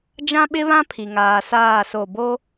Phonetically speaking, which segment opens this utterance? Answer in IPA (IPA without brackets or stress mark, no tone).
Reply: d͡ʒ